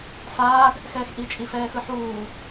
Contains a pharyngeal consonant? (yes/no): yes